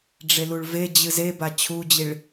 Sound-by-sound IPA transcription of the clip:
ɖ͡ʐ e l u ɭ v e d͡ʑ ɨ z e b a t͡ɕʰ u d͡ʑ i ɭ

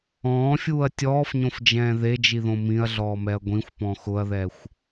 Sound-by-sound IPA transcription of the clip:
ɔ̃ː fʲ uː ɐ̯ tʲ ɔː f ɲ õ f d͡ʒ ɛ̃ː ð e d͡ʒ i ð õ m ĩ ɐ̯ ɮ ɔː m ɛ ɐ̯ ɡʷ ĩ xʷ p ɔ̃ x ʊ ɐ̯ ð ɛ xʷ

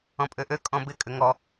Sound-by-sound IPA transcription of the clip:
ɔ̃ pʼ ø ʔ ø kʼ ɔ̃ b ɪ kʼ ʏ ŋ ɔ

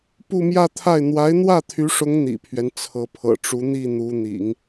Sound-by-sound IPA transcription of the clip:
p u˥˧ m j ä˥˧ t̪ʰ a˥˩ ɪ̯ n̪ w a˧˥ ɪ̯ n̪ w ä˥˩ t̪ʰ y˧˥ ʂ ʊ˧˥ ŋ n̪ ḭ˨˩ pʰ ɥ ɛ˦ n t͡sʰ ɤ˧˥ pʰ ɤ̰˨˩ ʈ͡ʂ u˧˥ n̪ i˥˩ n̪ u˧˥ n̪ ḭ˨˩˦ ŋ

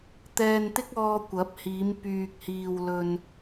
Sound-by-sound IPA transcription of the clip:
t̪ ɛː˧ n t̪ ɪ˥ k̚ ɔː˧ kʷ ɐ˨˥ p̚ h iː˨˧ m p yː˨ k̚ h iː˨ w l ɵ˧ n

